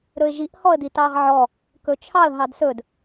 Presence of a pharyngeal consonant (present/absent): present